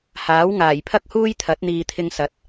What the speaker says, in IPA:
h aː˨˥ w ŋ aː˨˩ j pʰ ɐ˥ k̚ h uː˥ j t̪ʰ ɐ˨˥ t̚ n̪ iː˨ t̪ʰ ɪ˧ ŋ s ɐ˨˥ t̚

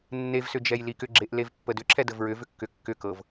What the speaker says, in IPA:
nː e v s ʏ d͡ʒ ɛ j l i k ʏ ɡ͡ǁ e ʔ l e v pː ə d ʏ ǁʰ ɛ d ə v ɹ ʏ v ʏ kː ʏ kː ʏ k ɤ v

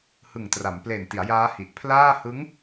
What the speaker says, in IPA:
h ɯ˨˩ ŋ t r a˩˦ m p l e˨˩ n t i˩˦ a̯ j aː˦˥ h i˨˩ ʔ pʰ l aː˥˩ h ɯ˦˥ ŋ

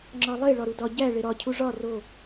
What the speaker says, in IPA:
ŋ͡ǁ ɒ lˠ e ɭ ɒ ɾ u d ɒ ɟ æ ɭ e ɾ ɒ cʰ u ʐ ɒ r o

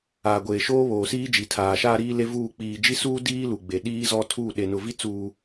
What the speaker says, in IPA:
aː˨ ɡʷ eː˨ ʃ oː˦ β oː˨ s iː˦ d͡ʒ i˨ tʰ aː˨ ʃ aː˦ ɾ iː˦ l e˦ v uː˦˨ k͡p iː˨ d͡ʒ i˦ s uː˦ d iː˦ l u˨ ɡ͡b e˨ ɗ iː˦ z ɔ˦ tʰ u˦˨ ɗ e˨ n ʊ˨ v i˦ t͡s uː˨

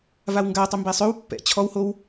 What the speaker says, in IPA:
v a w ŋ ɡ a tˤ y m b e sˤ ø w pː ɛ̰ t͡ɕʰ ɔ w h o w

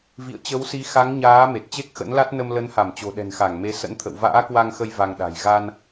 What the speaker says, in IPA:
v ḭ˧˨ ə̯ t͡ɕ ə˨˦ w s i˨˦ x a˨˦ ŋ ɲ aː˨˦ m e˨˩ t̚ t͡ɕ e˦˥ k̚ x ə̰˧˥ n l a˦˥ t̚ n ə˧ m l ə˨˦ n h a˧˩ m t͡ɕ o̤˨˩ ɗ ɛ̤˨˩ n x a˧˩ ŋ m e˨˦ s ə̰˧˥ n t̪ʰ ə̰˧˨ w v a̰ː˧˥ k w a˧ ŋ x ə˧ j v a˧ ŋ ɗ a̤˨˩ j ɣ a˧ n

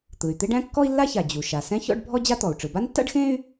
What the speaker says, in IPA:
t̪ ɯ˩ y̯ t̪ e˥ ɖ æ̃˥ kː ɔ˥ i̯ lː a˥ ç a˩ d͡ʑ u˩ ʃ a˩ s ɛ̃˥ ç ɔ̰˥ ɖ bʱ ɔ˥ d͡ʑ a˥ t̪ ɔ˩ u̯ ʈ͡ʂ ɯ˩ b a˥ n tː a̰˥ ɖ x ẽ˥ y̯

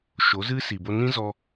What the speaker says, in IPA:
ʃ o˨˦ z ɨ˦ s i˨ b o˧ n ĩ˦ z ɔ˧

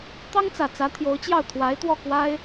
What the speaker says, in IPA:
t̪ ɑ˥ ŋ t͡s ä˨˩ t͡s ä˧˥ t̪ʰ j o˧˥ ʊ̯ t͡ɕ j ɑ˥˩ ʊ̯ t̪ʰ w a˧˥ ɪ̯ t̪ w ɔ˥˩ k w a˥ ɪ̯

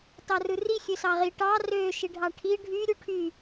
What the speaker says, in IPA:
t ɑ r ɯ r i xʲ ø s ɑ ʁ i ʈ ɑ r ø ʃ i ɖʱ ɑ ʈʰ i ɖʱ y ɾʲ u ʈʰ y

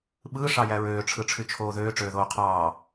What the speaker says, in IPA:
ɓ ɯː ʂ ɑ j æ ɹ øː ʈ͡ʂʰ ɯ ʈ͡ʂʰ y t͡ʃʰ oː ð øː ʈ͡ʂ øː ð oː qʰ ɑː

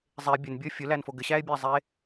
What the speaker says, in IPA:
zˤ e bʲ ɘ n bʲ ɤ fʲ ʊ l æ n f o ɡ ɘ ɕ æ e̯ bʲ æ zˤ e

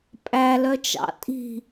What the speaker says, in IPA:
pʼ æ l œ t͡ʃ ɑ̰ tʼ i̤

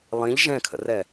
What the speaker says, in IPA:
lˠ ĩ ʎ ʒ ɛ̃ kʰ ə̰ r ɛ

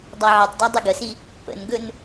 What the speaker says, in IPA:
dˤ a ʕ ɛ tˤ d a dˤ ɵ ɡ ə s i | p ə̰ n ɡ ɵ n

